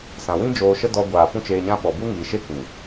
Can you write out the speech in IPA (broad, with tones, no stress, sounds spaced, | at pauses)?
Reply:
s ã˨ w ĩ˦ d͡ʒ oː˧ ʃ ə˦ d ɔ˧ ɡʷ aː˨ p ũ˦ t͡ʃ eː˧ ɲ ã˦ ɓ ɔ˨ b u˦ ŋ iː˨ ʃ e˦ k ĩ˨